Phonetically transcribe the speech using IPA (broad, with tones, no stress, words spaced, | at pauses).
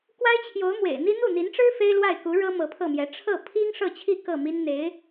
kwa˥ɪ̯t͡ɕʰjo˧˥ʊ̯ mwḛ˨˩ɪ̯n̪i˥ n̪u˥˩n̪i˧˥nʈ͡ʂɻ̩˥ fe˥ɪ̯lwa˥˩ɪ̯ku˧˥ ɻɤ˥ mɤ˧˥pʰɤ˥˩mjɛ˧˥ ʈ͡ʂʰɤ˥˩ pʰi˥ŋ ʂɤ˥˧t͡ɕʰi˥˧ kɤ˥˩mi˥n n̪e˧˥ɪ̯